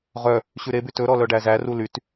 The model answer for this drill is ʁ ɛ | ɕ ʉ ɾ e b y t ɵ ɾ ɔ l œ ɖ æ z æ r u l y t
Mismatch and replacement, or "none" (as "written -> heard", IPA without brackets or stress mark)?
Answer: ɛ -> œ